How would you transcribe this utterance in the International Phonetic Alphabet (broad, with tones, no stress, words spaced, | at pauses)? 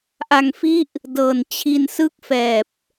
ʔa˧ŋfi˥˩ʔ | dɤː˨˩nt͡ɕʰi˧nsɯ˥˩k̚fɛː˨˩p̚